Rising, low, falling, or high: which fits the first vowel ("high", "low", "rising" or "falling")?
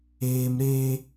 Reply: high